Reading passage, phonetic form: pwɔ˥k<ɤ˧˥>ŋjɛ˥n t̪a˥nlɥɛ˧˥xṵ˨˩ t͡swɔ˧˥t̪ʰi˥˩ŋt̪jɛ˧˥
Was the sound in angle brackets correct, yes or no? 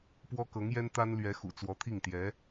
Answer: yes